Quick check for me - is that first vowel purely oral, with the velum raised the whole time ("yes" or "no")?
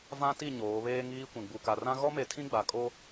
no